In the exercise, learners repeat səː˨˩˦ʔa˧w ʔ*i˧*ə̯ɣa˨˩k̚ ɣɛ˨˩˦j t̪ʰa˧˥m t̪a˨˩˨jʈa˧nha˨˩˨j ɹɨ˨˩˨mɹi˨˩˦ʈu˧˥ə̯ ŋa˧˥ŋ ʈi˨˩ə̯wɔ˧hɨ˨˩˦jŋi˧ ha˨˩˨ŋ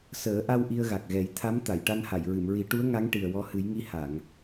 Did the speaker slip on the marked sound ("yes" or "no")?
no